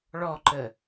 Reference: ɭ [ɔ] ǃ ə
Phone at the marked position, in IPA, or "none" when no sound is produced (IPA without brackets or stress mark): ɔ